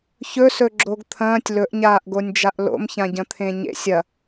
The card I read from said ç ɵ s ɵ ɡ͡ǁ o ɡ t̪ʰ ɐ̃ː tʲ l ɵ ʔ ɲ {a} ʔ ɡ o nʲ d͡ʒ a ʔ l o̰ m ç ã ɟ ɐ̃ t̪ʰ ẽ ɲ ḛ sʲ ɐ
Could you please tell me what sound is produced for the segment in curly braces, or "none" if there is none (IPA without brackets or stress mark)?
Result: aː